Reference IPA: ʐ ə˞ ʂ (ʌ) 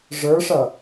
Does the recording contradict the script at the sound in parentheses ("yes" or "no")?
no